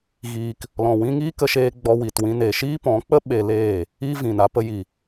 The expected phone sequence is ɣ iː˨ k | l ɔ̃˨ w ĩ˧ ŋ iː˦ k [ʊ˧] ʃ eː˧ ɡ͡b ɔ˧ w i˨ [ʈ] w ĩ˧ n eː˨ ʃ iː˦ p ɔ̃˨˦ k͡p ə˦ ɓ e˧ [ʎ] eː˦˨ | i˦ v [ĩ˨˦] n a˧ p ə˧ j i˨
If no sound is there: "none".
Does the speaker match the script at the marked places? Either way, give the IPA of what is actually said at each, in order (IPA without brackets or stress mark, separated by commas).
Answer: ə˧, t, l, ĩ˨